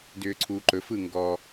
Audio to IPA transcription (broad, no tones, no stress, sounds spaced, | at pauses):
d ʏː ǀʰ uː ǃ ɵ f ɯ ŋ ɡ ɔ